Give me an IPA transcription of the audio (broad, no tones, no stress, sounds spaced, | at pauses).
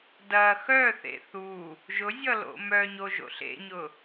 d ɐ x œ θ ḛ θ u | ʒ ʊ zʲ ʌ l o̰ m œ ɲ o ʒ o̰ ɬ ḛ ɲ ʊ